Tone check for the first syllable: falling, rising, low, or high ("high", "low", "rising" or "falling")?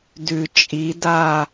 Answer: low